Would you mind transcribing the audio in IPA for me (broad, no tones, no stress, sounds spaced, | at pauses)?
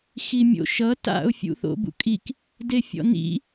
x i mʲ o̰ ʃ ʌ t a̰ ʊ̯ fʲ ṵ θ o̰ b ṵ kʼ i k | d e fʲ ɔ̰ n ḭ